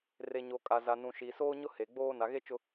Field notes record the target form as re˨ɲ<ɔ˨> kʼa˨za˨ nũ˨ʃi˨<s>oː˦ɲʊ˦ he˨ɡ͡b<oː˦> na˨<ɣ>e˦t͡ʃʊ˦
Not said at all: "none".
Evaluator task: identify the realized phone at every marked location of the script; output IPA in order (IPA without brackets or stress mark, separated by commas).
o˨, s, oː˦, ɣ